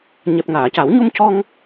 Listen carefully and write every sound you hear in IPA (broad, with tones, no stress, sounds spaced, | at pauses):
ɲ ɛ˨˩ p̚ ŋ aː˨˩˨ c a˨˩˦ w ɲ u˧ m c ɔ˧ ŋ